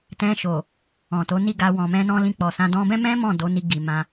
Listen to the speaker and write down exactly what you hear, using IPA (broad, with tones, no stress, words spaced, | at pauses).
tɛ̃˧ʃo˨ | ɔ̃˨to˨˦ni˦˨ɡa˧ wɔ̃˨mɛ̃˧nɔ̃˧lĩ˧ k͡pɔ˨sã˧ dɔ̃˧bɛ̃˦mɛ̃˦ mɔ̃˦˨do˨˦ni˧ ɡi˨mã˧